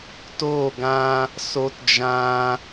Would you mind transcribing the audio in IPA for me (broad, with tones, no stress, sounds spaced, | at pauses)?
t oː˦˨ ɡ ã˦ | s o˦ t d͡ʒ ã˦